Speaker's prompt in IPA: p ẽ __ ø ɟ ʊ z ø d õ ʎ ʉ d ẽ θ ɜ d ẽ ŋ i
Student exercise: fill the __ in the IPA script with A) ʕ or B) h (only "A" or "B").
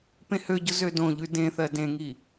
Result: B